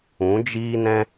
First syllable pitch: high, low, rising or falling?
rising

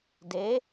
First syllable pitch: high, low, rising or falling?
rising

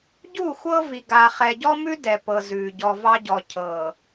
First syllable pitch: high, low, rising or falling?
falling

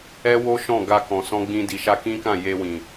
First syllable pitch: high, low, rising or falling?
high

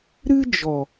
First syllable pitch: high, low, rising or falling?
high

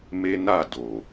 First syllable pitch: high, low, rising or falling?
high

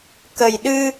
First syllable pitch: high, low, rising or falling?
low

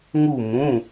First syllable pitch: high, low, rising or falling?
falling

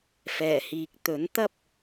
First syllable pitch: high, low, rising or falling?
low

